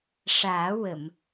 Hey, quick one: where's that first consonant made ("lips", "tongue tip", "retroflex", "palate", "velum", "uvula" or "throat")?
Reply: retroflex